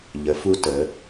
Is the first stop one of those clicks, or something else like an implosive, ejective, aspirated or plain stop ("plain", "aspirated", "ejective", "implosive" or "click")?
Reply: plain